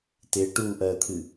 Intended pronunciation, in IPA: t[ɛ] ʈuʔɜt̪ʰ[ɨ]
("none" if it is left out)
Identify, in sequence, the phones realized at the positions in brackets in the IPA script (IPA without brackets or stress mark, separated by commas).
ɪ, ɨ